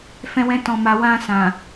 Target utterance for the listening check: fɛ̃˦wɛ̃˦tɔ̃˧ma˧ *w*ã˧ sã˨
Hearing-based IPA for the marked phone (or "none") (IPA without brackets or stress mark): w